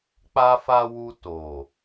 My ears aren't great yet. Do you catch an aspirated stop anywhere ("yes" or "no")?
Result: no